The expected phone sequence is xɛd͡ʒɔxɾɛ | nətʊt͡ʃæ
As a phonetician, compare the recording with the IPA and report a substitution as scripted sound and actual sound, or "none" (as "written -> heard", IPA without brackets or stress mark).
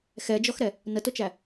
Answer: none